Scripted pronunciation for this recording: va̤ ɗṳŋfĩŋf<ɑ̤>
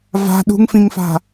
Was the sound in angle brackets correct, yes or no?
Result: no